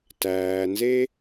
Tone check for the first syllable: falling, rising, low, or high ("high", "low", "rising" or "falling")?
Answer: low